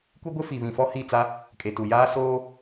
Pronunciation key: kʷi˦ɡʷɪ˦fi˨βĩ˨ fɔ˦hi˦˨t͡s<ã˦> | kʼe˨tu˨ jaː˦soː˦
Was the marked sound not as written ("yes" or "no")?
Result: yes